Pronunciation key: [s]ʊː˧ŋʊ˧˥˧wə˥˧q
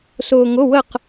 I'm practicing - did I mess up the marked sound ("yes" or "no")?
no